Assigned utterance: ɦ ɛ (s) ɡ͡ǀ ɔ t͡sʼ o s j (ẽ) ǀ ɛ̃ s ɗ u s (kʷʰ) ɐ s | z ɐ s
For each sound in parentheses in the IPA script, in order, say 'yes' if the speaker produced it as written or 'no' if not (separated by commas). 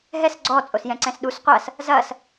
yes, no, no